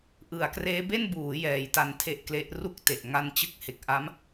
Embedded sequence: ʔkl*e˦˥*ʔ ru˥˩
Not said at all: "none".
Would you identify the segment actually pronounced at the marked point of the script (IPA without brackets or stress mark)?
e˦˥